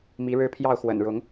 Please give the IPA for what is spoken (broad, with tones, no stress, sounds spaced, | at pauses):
m i˨˦ ɻ ɻ̩˦ pʰ j ɑ˥˨ ʊ̯ x w ə̰˨˩ n ɻ ʊ˨˦ ŋ